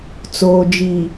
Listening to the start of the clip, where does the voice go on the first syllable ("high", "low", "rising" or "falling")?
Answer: low